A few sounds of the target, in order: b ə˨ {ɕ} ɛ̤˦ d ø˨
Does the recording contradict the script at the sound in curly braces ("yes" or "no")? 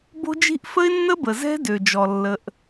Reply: yes